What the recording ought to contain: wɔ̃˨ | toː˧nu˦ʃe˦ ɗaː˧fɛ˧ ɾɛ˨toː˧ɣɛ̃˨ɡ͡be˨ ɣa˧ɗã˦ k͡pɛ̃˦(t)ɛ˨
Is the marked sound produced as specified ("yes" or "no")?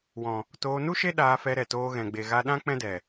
no